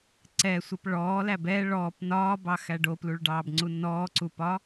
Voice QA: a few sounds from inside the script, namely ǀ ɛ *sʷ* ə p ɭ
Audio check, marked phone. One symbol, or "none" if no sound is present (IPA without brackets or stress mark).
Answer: sʷ